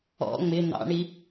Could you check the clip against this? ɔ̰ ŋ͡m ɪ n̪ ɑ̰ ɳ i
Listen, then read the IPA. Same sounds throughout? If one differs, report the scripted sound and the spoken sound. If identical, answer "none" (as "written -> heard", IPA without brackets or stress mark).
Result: none